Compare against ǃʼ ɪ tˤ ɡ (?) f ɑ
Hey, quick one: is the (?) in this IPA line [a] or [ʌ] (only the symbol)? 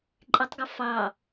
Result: ʌ